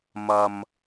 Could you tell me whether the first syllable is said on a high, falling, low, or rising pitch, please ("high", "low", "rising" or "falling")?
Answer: low